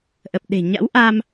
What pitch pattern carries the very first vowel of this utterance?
low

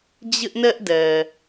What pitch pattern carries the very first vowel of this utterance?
high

